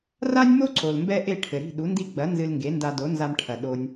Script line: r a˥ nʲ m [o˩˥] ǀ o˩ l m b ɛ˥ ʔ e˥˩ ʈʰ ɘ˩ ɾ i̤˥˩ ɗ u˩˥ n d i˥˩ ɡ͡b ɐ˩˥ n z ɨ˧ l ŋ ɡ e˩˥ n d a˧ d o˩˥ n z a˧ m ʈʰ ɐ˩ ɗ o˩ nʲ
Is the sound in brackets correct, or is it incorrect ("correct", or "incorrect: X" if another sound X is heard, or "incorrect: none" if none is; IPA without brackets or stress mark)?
incorrect: o˥